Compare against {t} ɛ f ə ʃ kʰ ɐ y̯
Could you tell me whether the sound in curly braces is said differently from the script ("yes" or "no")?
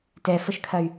no